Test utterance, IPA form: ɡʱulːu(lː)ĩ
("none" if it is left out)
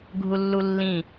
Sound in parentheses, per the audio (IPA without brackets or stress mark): lː